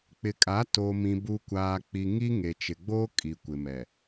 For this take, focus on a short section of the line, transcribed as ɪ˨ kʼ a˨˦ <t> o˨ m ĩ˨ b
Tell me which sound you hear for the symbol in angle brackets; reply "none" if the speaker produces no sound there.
t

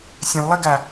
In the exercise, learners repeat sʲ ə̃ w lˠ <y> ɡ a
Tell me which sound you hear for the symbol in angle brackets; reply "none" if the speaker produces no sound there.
i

